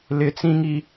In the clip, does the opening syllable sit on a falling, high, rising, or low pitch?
high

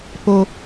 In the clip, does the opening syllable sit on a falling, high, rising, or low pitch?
low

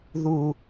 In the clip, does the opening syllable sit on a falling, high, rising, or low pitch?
low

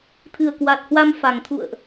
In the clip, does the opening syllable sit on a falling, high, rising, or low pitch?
low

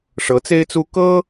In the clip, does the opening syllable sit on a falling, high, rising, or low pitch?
rising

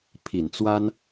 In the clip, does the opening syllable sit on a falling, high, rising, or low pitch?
low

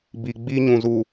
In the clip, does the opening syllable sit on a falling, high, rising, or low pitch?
low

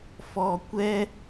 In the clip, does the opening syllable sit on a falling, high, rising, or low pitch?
low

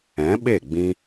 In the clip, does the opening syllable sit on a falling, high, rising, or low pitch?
rising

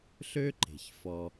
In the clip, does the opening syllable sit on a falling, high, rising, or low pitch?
high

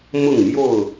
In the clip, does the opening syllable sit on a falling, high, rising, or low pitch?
falling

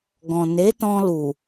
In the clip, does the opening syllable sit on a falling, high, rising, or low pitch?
low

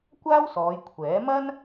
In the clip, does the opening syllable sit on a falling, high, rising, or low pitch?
high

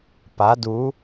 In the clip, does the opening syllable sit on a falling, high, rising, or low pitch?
rising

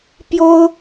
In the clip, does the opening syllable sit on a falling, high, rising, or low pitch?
high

